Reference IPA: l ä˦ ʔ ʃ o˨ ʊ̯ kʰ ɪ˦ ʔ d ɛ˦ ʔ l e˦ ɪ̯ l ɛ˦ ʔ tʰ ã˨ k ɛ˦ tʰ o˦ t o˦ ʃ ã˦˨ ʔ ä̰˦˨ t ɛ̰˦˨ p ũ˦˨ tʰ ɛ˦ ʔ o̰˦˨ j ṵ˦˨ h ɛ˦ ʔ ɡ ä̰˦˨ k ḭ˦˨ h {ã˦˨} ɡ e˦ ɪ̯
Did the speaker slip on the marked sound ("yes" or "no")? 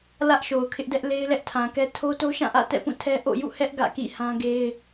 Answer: yes